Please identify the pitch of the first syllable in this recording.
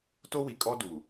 high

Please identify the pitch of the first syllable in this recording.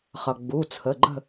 low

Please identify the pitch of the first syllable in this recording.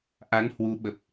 rising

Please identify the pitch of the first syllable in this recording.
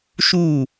falling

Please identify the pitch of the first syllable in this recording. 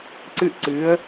high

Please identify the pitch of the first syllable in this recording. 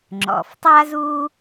low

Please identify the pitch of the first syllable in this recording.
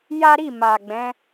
high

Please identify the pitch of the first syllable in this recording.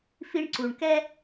high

